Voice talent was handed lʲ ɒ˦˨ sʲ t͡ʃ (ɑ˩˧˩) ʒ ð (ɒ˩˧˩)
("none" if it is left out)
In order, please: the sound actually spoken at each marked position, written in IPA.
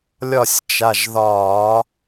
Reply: a˩˧˩, ɒ˧˩˧

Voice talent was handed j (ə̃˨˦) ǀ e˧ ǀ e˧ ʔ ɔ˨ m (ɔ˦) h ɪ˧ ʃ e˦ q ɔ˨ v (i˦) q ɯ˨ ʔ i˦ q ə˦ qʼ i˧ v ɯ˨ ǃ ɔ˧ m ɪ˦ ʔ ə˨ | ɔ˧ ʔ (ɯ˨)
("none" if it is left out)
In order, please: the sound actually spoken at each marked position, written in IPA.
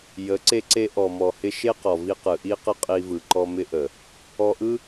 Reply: ə˨˦, ɔ˨, i˧, ɯ˦

